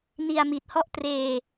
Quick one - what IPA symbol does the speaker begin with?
n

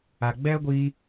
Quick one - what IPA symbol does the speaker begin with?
a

